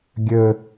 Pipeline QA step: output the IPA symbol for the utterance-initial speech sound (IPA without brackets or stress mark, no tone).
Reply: ɡʲ